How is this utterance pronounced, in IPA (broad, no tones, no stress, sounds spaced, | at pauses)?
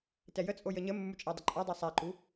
t ɛ j ə t͡sʼ o j ə ɲ ə mː u t͡ʃʼ æ dˤ ə ǃʼ a dˤ e sˤ æ ǃ u